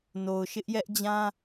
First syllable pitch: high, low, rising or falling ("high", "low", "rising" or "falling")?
low